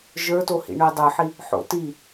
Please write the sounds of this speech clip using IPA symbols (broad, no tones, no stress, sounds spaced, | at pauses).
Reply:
ʒ ə˞ t o h ḭ ɳ œ dˤ ə˞ ħ i | ħ o̰ t i